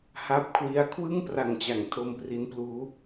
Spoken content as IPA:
h a˦˥ p̚ kʰ w i˦˥ a̯ kʰ w ɯ˥˩ ŋ p r a˨˩ ŋ t͡ɕ a˩˦ ŋ tʰ o˧ m p r i˦˥ n p l uː˦˥

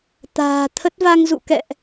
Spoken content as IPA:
t̪ a̤ː˨˩ t̪ʰ ə˦˥ t̚ v a˧ ŋ z ṵ˧˨ k ɛ̰˧˨ ʔ

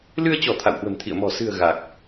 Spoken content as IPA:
l ɨ˧ ə̯ t͡ɕ ɔ˧˩ t̪ʰ a̰˧˨ w h w ə̤˨˩ m t̪ʰ ḭ˧˨ ə̯ m ɔ̤˨˩ s ɨ̤˨˩ ə̯ ɣ a˨˩ k̚

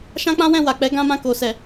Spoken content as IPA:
ʃ ã˦ k͡p ã˦ w ɛ̃˦˨ w a˨ k͡p ɛ˨˦ ɡ ã˦ m ã˦˨ k o˨ s ɛ˨

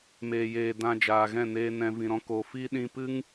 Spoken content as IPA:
m eː˨ j eː˨ d ã˧ d͡ʒ aː˨ ɣ ɛ̃˦˨ n eː˧ n ɛ̃˨ v ĩ˨ ɾ ɔ̃˧ k o˨ f i˦ ɗ ĩ˧ p ɨ˦ ŋ

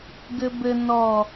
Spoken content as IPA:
ɡ ɘ b ɘ n ɔ

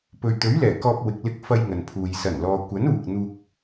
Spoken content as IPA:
p ɵ˨ ɥ t̪ ɵ˨˥ ɥ l ɛː˨˩ k ɔː˧ p̚ w ɪ˨ k̚ l ɪ˧ k̚ f ɐ˧ j ŋ ɐ˨ n pʰ uː˨ j s ɐ˨˩ n l ɔː˨ kʷ ɐ˨˥ n uː˨ k̚ n̪ uː˧ k̚

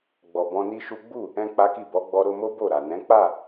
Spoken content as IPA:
ɡ͡b ɔ˨ b ɔ̃˧ n i˦ ʃ u˦ ɡ͡b u˦˨ | ɛ̃˦ k͡p a˦ k i˦˨ b ɔ˨˦ ɡ͡b ɔ˧ ɾ o˧ m o˦ b o˦˨ ɾ a˨ n ɛ̃˨˦ k͡p a˦˨

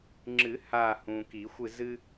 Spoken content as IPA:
ŋ͡ǁ ɨ˨˩˦ h aː˦˨ h ũː˨ k i˨˩˦ xʷ ɨ˦˨ z ɨ˦

